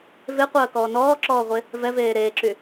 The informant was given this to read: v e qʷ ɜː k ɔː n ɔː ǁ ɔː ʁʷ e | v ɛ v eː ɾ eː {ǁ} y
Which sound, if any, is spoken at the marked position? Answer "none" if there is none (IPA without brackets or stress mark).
ǁ